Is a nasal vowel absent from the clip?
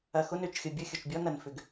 yes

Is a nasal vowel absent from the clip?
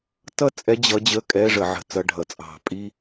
yes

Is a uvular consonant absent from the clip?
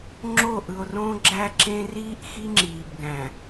yes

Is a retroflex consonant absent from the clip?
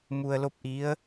yes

